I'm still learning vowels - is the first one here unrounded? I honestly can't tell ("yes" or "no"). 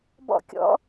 no